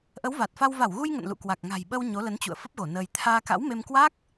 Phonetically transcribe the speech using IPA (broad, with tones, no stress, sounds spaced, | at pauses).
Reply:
ʔ ə˨˦ w v a˨˩ t̚ f a˧ w v a˧˩ w ɣ u˧ j ŋ ə̰˧˨ n l ṵ˧˨ k w a˨˩ k̚ ŋ a̤˨˩ j ɓ ə˧ w ɲ o˨˦ l ə˨˦ n t͡ɕ ṵ˧˨ ə̯ f ə˦˥ p̚ ɣ o˧˩ n əː˧ j t̪ʰ aː˧ k a̰˧˥ w m e˧ m k w a˦˥ k̚